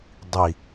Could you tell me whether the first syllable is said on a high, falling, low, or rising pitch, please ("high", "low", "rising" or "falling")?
low